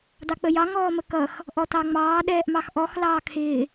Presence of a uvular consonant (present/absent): absent